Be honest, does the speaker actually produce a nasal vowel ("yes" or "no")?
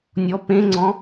yes